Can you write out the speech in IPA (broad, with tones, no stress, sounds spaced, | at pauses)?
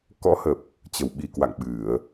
k ɔ̰˧˥ h ə˨˩ p̚ | t͡ɕ ə˨˩ w ɓ i˨˩ k w a̰˧˨ ŋ ɓ ɨ˧˩˨ ə̯